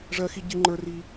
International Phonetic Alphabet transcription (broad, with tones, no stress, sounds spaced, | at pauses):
ʐ ɜ˥ x i˥ ɟ i˥ ŋ͡ǃ ə˞˥ r i˥